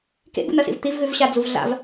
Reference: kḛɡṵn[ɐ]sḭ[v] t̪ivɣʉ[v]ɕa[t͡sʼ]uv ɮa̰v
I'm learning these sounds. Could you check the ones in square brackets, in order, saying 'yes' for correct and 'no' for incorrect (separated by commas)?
yes, yes, yes, no